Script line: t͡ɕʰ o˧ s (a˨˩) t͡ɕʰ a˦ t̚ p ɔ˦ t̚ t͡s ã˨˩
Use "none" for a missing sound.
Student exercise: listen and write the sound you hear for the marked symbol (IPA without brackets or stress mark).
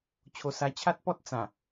a˧